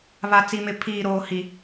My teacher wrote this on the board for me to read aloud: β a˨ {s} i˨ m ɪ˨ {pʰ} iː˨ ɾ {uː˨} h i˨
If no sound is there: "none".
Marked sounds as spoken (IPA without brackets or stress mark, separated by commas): t͡s, pʰ, oː˨